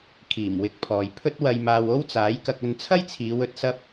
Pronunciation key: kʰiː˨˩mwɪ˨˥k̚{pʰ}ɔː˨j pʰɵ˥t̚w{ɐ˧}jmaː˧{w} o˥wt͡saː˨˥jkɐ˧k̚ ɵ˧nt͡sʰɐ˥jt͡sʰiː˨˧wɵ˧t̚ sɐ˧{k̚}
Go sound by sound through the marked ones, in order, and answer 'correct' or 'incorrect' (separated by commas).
correct, correct, correct, incorrect